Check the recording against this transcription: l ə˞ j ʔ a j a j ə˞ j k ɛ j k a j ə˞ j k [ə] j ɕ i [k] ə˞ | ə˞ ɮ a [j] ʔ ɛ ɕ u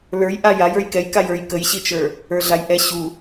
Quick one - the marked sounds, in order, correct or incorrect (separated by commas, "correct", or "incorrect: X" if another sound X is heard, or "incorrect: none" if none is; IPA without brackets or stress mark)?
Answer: correct, incorrect: t͡ʃ, correct